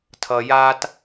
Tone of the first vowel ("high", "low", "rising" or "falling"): low